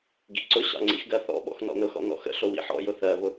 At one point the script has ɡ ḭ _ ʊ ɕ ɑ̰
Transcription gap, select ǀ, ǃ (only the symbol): ǀ